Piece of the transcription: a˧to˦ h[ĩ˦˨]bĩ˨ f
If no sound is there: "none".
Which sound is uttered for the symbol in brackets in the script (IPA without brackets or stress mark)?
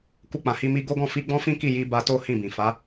ĩ˦˨